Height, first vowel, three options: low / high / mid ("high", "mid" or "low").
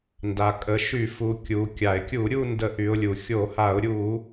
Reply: low